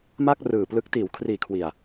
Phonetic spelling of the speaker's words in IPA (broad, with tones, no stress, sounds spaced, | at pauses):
m a˥˩ k̚ r ɯː˨˩ p l ɯ˦˥ k̚ t iː˩˦ w kʰ r iː˨˩ kʰ w i˨˩ a̯